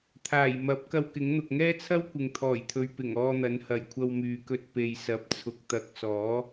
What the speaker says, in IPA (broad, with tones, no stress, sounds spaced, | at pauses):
t̪ʰ aː˨˩ j m ɐ˨˥ p̚ k ɐ˧ w k ɪ˨˥ ŋ n̪ ʊ˨ k̚ ŋ ɛː˥ t͡sʰ ɐ˥ w kʷ ɪ˨ ŋ t̪ʰ ɔː˨˩ j t̪ʰ ɵ˨ ɥ p ɪ˨˩ ŋ ɔː˧ n̪ ɐ˨˥ n h ɐ˨˩ j kʷʰ ɐ˧ w m yː˨ k ɵ˧ t̚ p e˨ j s ɐ˨˥ p̚ t͡sʰ ʊ˧ k̚ t̪ ɐ˧ k̚ s ɔː˨˥